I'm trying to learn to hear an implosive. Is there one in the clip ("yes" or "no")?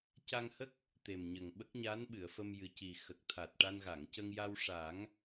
yes